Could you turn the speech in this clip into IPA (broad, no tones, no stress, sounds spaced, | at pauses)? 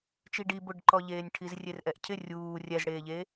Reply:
t͡ʃ i ɖ i b ʊ ɖ ǃ ɔ ʎ eː nʲ ʈʰ i z rʲ e r ʔ ɛ ʔ cʰ ɪ rʲ uː rʲ ɛ z ɽ eː ʎ e